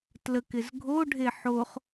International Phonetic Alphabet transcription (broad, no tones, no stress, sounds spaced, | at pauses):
t l ə k ɪ z ɡʱ o ɖʱ e ħ o χ